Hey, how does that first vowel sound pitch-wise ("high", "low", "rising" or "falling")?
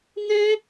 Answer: high